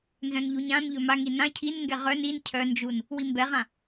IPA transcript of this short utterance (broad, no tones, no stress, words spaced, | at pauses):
nzœ̃nʎuɲãnʎɵ maŋi nã cʰinŋɡɛ ʁœn in cʰœnd͡ʒun | wimbɛʁã